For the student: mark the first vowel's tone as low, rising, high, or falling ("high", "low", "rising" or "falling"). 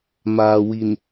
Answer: low